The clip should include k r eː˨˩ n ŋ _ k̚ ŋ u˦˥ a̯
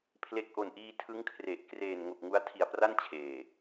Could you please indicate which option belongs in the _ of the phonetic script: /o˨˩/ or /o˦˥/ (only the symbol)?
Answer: o˨˩